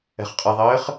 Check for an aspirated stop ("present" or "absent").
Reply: absent